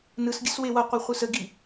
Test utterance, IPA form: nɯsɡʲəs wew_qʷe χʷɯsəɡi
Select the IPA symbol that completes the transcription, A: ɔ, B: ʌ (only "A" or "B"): B